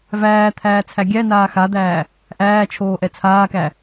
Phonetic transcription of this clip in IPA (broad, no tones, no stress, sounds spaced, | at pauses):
v æː t̪ʰ æː t͡sʰ æ ɡʲ æ n aː x a d̪ æː | ʔ æː t͡ʃʰ oː ʔ ɛ t͡sʰ aː k æ